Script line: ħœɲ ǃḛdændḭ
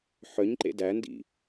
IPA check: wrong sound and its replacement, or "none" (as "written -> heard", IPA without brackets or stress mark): none